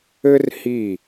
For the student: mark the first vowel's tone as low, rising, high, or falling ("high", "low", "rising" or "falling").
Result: high